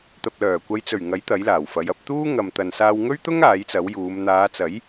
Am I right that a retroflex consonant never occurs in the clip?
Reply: yes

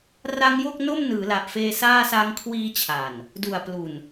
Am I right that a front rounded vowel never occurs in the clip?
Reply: yes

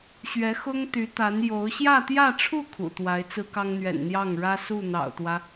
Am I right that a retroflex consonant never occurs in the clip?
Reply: no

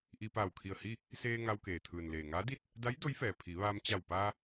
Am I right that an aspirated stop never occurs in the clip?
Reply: no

